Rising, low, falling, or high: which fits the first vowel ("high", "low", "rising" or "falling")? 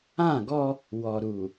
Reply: falling